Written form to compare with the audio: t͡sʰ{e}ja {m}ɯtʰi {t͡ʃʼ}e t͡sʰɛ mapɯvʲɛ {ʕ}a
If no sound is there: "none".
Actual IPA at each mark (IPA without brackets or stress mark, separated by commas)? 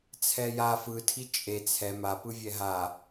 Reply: ɛ, f, t͡ʃʼ, ɦ